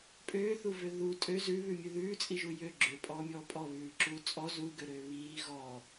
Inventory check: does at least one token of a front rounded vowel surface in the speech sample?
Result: yes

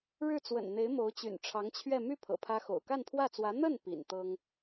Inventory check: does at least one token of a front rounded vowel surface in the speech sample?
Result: yes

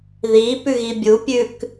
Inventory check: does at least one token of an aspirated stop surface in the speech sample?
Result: no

